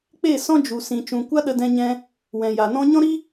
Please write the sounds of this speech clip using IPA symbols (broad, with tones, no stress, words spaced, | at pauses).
k͡pe˦˨ sɔ̃˦d͡ʒu˨sĩ˨ t͡ʃũ˨ kʷa˦ɗə˧dɛ̃˧ɲɛ̃˧ | wɛ̃˨ja˨nɔ̃˦ ɲɔ̃˦ɾi˦